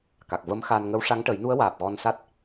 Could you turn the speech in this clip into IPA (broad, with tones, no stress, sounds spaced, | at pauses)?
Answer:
k a˨˩ k̚ v ə˧˥ m x a˧ n ŋ ə˧˥ w ʂ a˧˥ ŋ ʈ ə˨˩˦ j n u˧˥ ə̯ w aː˨˩ p̚ ɣ ɔ˧ n s a˦˥ t̚